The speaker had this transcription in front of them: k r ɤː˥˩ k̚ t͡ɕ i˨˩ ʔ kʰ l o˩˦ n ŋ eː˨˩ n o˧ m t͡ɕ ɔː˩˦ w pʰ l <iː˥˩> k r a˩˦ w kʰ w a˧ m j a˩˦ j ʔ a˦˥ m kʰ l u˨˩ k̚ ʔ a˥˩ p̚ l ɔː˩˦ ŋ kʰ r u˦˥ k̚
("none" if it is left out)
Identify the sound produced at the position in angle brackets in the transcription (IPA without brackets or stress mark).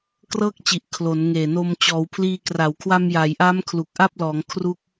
iː˧